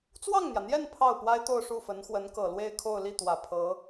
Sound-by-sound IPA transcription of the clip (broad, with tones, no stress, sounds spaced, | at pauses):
t͡s w ɑ˥˩ ŋ n̪ j ä˩ n̪ j ɛ˥˧ n pʰ ɑ˥˩ ʊ̯ p w a˥ ɪ̯ t̪ o˥˧ ʊ̯ ʂ u˥˩ f ə˧˥ n x w ə˧˥ n k ɤ˨˩ l w e˥˧ ɪ̯ kʰ o˥˧ ʊ̯ l i˥˩ t̪ w ä˨˩ pʰ ɤ˧˥